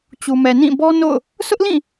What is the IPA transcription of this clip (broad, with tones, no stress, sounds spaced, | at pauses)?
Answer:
t͡ɕ u˨ m ɛ˨ n ĩ˦˨ b ɔ˦ n o̰˦˨ ʊ̯ | s ʊ˦ ʔ l ĩ˦˨